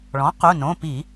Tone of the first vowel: rising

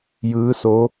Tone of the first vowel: rising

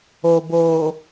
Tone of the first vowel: low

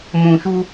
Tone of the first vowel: low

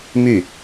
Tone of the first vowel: falling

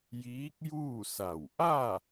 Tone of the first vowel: rising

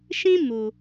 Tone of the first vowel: high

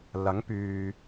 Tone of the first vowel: rising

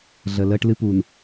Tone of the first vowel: low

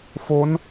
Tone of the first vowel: rising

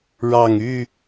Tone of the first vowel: low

